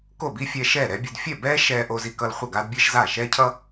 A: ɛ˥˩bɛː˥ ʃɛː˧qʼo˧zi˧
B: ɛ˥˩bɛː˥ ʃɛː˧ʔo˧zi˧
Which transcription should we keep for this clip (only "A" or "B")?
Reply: B